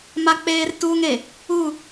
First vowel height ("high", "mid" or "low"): low